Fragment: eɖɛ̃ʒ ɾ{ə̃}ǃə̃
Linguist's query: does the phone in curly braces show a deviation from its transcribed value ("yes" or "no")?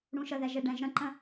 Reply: no